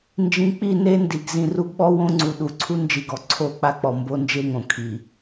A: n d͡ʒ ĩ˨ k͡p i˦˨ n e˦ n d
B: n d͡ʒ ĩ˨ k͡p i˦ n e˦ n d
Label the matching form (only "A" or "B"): A